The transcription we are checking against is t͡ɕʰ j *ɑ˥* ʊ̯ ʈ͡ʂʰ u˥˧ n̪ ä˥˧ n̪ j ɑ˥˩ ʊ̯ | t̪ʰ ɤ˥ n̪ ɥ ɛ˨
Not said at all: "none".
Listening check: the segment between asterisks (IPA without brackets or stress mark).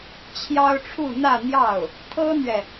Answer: ɑ˥